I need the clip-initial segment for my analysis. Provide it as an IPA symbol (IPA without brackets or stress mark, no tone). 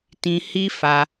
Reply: t